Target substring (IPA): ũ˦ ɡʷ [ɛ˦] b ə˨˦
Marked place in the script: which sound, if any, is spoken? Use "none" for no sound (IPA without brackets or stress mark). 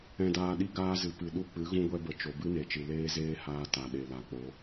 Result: ɛ˦